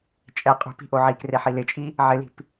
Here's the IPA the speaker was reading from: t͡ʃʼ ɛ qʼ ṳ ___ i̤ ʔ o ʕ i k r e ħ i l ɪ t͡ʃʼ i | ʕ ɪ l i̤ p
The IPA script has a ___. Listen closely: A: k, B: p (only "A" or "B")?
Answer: B